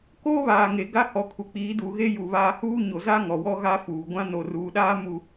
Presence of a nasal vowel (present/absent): present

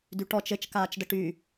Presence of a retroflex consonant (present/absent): present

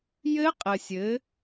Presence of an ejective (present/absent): present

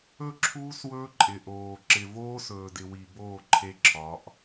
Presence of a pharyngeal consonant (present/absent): absent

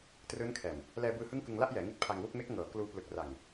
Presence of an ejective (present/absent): absent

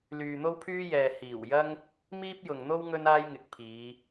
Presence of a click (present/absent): absent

